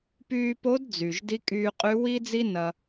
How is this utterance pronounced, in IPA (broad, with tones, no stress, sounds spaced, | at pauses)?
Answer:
p yː˧ p o˧˥ d d͡z y˩ ʒ d i˧˥ kʼ yː˧ qʼ y˧˥ w i˥ d͡z i˥ n ɐ˧